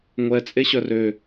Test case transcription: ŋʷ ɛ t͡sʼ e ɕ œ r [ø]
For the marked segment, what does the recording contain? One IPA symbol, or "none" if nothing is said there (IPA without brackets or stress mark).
ø